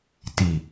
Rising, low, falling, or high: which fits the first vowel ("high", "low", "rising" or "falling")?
low